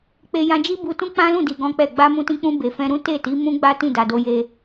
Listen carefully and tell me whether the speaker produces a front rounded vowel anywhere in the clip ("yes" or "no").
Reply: no